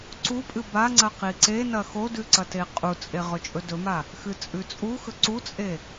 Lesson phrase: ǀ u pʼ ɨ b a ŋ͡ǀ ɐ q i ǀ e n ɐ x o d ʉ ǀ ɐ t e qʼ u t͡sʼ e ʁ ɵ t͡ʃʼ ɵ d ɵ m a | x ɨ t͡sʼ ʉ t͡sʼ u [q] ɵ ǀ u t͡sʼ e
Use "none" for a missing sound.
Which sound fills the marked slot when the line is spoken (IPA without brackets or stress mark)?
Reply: x